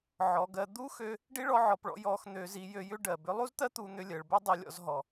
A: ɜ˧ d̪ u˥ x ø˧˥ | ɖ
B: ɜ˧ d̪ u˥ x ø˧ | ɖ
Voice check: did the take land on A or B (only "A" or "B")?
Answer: B